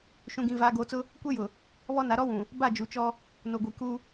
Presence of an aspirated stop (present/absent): absent